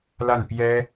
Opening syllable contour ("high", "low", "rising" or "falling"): falling